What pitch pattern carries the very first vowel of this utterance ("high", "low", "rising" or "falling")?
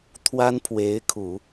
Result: high